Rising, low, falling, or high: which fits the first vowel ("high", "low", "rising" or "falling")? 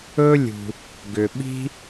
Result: high